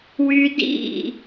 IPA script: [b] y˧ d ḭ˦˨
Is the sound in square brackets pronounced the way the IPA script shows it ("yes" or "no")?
no